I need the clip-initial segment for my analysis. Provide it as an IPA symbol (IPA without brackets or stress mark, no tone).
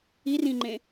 i